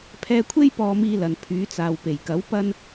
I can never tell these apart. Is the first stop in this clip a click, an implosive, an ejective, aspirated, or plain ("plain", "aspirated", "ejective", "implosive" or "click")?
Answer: aspirated